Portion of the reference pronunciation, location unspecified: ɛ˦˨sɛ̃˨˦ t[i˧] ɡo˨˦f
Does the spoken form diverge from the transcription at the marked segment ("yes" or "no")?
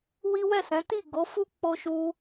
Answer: yes